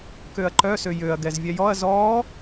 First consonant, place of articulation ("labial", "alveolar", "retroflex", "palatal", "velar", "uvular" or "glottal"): velar